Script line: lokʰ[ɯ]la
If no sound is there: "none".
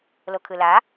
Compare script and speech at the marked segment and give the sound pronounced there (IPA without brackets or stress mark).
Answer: ɯ